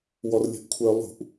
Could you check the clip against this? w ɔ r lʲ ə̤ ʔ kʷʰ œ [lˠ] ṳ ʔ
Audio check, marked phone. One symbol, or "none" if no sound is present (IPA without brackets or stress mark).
lˠ